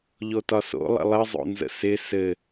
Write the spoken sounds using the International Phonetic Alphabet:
ʎ o t ɒ s o̰ lˠ ə̰ lˠ ɘ zˤ o̰ n z ə̰ s ɪ s ɘ

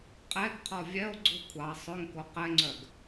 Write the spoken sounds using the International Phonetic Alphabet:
qʼ ɛ ɡ qʰ ɔ vʲ ɛ o̯ ɡ͡ǀ u kʷʰ ɑ sˤ ɵ ŋ k o q ɛ ŋ͡ǀ œ ɡ

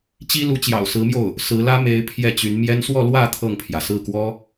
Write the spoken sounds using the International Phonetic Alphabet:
t͡ɕ i˥ l u˧˥ t͡ɕ j ɑ̰˨˩ ʊ̯ s ɹ̩˧˥ m j o˥˩ ʊ̯ | s ɹ̩˧˥ l ä˥ m e˧˥ ɪ̯ pʰ j ɛ˥˩ t͡ɕ y˧˥ n m j ɛ˥ n s w ɔ˥˧ l w ä˥˧ t̪ʰ ɤ˥˩ ŋ pʰ j ä˩ s ɹ̩˥˩ k w ɔ˥

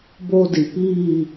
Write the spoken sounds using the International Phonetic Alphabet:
b o˧ d i˩ p iː˥˨

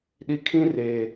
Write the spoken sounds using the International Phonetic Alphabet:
ɗ i˨ kʰ ĩ˦ r eː˨

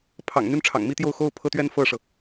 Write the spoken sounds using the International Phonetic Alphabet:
pʰ ɑ̰˨˩ ŋ n̪ y˥˩ n ʈ͡ʂʰ ɑ̰˨˩ ŋ m i˥ t̪ j o˥˩ ʊ̯ x o˥ ʊ̯ pʰ ɤ˥ t̪ ɥ ɛ˥ n f ɤ˥˩ ʂ ɤ˩

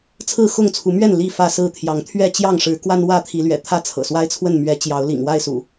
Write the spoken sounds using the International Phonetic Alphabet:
t͡sʰ ɹ̩˥˨ x ʊ˥˨ ŋ t͡sʰ u˨˦ m ɥ ɛ˥˨ n l i˥˨ f ä˥˨ s ɹ̩˥˨ t̪ʰ j ɑ˨˦ ŋ t̪ʰ ɥ ɛ˥˨ t͡ɕ j ɑ˥˨ ŋ ʂ ɻ̩˨˦ k w a˦ n w ä˥˨ t̪ʰ i˨˦ l ɥ ɛ̰˨˩ t̪ʰ ä˥˨ t͡sʰ ɤ̰˨˩ s w a˦ ɪ̯ t͡sʰ w ə˥˨ n m ɥ ɛ˨˦ t͡ɕ j ɑ˨˦ ʊ̯ l ḭ˨˩ ŋ w a˥˨ ɪ̯ s ṵ˨˩

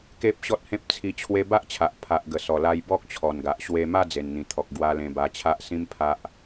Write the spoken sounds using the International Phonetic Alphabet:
k e˦ p̚ ɕ ɔ˦ t̚ h ẽ˦ p̚ t͡sʰ i˧ t͡ɕʰ w e˧ b a˦ ʔ t͡ɕʰ a˨ ʔ pʰ a˨ ʔ ɡ ə˨˩ s ɔ˨˩ l a˧ j b ɔ˦ k̚ t͡ɕʰ ɔ˨˩ n ɡ a˨ ʔ ɕ w e˧ m a˥˧ d͡z e˨˩ n n̪ ĩ˨˩ t̪ʰ ɔ˨ k̚ ɡ w a˧ l ẽ˧ b a˧ t͡ɕʰ a˦ ʔ s ĩ˦ m pʰ a˦ ʔ

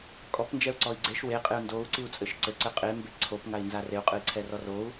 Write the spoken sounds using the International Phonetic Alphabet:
kʼ ɔ p n d͡ʒ ɛ u̯ ǀ ɔ i̯ ɡ͡ǀ e ʃ w e qʼ e u̯ n d o u̯ ǀ i u̯ t͡sʼ ɘ ʃ ǀ ɘ ǀ ɘ qʼ e m b e ǀʰ o p ŋ a i̯ n z a r e u̯ qʼ ɨ i̯ ǀʰ ɛ r ɔ r o u̯

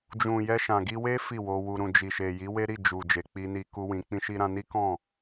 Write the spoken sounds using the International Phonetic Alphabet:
d͡ʒ ũ˨ j ɛ˧ ʃ ã˨ ɡ i˧ w e˦ f i˦˨ w o˧ w u˧ ɾ ũ˨ d͡ʒ i˨ ʃ e˨ j i˨˦ w e˦ ɾ i˦˨ d͡ʒ u˨ d͡ʒ e˨ k͡p i˧ n i˧ k u˦ w ĩ˧ k͡p ĩ˦ ʃ i˦ ɾ ã˦ n i˦ k ɔ̃˦˨

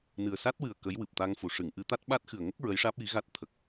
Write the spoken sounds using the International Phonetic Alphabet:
n ɨ˨˩ ə̯ s a˦˥ t̚ w ɨ˨˩ ə̯ k ə˧˥ j w ɨ˨˩ p̚ t̪ a˧ ŋ f u˨˩˨ ʂ ɨ˨˩˨ ŋ ʔ ɨ˧˥ t̪ a˦˥ t̚ ɓ a˦˥ t̚ x ɨ˨˩ ə̯ ŋ ə˦˥ k̚ ɹ ə˧˥ j ʂ aː˦˥ p̚ j i˧˥ ɣ a˦˥ t̚ t̪ʰ ə˨˩ k̚

